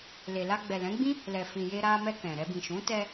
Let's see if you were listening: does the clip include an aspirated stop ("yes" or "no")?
no